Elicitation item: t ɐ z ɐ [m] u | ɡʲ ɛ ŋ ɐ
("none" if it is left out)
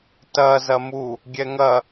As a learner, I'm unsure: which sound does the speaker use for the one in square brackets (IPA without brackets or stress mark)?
m